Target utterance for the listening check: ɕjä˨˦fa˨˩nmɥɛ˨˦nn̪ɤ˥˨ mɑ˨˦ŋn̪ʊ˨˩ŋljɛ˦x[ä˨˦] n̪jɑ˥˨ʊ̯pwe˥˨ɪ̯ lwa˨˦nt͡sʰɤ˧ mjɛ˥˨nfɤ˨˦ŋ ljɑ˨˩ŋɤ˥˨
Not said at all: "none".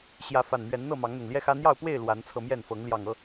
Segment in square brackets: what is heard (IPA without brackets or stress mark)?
ä˦